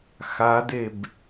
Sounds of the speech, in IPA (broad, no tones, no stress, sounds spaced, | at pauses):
x a d e b